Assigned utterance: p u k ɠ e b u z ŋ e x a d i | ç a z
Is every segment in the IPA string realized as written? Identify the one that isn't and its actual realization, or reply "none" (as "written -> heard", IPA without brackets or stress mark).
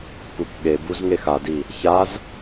none